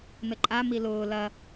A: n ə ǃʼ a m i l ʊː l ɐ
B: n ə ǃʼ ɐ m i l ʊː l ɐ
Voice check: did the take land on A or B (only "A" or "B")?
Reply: A